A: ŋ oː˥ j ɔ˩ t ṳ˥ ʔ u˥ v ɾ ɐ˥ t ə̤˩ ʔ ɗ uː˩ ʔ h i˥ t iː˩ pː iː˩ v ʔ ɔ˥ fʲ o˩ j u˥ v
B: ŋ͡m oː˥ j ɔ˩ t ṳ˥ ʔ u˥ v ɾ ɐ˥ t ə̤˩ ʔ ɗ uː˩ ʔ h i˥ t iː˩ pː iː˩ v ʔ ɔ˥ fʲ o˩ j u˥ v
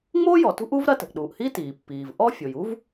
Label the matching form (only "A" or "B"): B